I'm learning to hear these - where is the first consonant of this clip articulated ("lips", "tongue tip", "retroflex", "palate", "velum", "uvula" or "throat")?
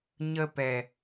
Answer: palate